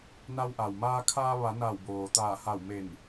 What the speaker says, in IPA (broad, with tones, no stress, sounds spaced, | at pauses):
n a˧ w ʔ a˩ w m aː˧ kʰ aː˧ ʋ a˩˧ n a˧˩ w b oː˩ t̪ aː˧˩ h a˧˩ w m e˧˩ n